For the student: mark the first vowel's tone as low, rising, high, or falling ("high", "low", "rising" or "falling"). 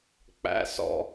high